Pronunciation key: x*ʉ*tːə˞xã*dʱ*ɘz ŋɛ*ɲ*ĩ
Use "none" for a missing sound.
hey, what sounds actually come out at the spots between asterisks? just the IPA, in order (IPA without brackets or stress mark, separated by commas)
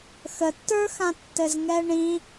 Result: ə, tː, ɳ